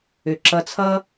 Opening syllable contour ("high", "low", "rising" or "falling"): low